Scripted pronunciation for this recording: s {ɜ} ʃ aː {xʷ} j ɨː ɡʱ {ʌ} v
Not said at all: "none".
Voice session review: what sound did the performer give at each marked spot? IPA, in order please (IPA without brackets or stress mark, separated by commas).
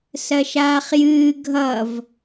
ɜ, χ, ʌ